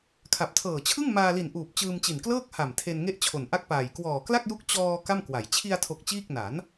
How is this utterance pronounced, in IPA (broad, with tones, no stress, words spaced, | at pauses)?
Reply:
kʰa˨˩p̚tʰɤː˨˩t͡ɕʰɯ˥˩ŋ maː˧li˨˩nʔuː˨˩p̚ t͡ɕɯː˧mt͡ɕi˨˩nklɤː˥˩k̚ ha˨˩m tʰe˧n ŋe˥˩ʔt͡ɕʰo˨˩nʔa˥˩k̚paː˨˩j kwɔː˨˩kla˥˩k̚ju˦˥k̚ t͡ɕɔː˧ ka˥˩mkwa˩˦j t͡ɕʰi˧a̯tʰo˨˩k̚ t͡ɕiː˥˩k̚ na˩˦n